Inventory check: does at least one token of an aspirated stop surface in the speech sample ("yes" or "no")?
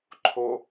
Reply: yes